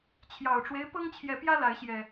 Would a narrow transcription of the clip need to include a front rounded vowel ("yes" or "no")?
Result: no